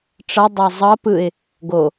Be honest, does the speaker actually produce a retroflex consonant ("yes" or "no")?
yes